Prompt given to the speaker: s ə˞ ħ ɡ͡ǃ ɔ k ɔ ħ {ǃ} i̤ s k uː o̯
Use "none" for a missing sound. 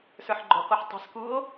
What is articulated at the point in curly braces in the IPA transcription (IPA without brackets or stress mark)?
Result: tˤ